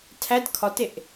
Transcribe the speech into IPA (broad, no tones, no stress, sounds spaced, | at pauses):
tʰ æ d kʰ ɒ t e ʔ